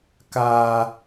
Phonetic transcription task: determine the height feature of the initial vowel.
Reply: low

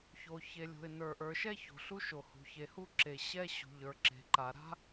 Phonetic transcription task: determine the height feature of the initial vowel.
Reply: mid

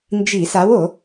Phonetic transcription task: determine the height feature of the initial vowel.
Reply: high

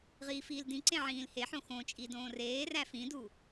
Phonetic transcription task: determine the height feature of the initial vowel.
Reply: high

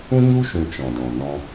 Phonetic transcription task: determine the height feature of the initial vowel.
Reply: high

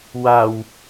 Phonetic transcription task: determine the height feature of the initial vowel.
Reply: low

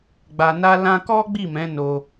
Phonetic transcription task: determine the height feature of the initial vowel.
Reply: low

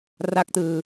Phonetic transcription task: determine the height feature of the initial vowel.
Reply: low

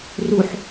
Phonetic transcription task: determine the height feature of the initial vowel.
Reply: high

